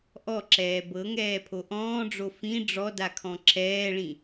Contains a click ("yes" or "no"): yes